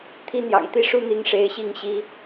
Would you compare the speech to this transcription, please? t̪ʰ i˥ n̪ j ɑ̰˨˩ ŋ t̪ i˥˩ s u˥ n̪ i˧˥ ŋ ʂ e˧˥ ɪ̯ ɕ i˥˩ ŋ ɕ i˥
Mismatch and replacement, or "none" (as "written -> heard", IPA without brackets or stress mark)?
s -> ʂ